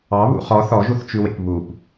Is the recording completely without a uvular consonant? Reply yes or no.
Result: no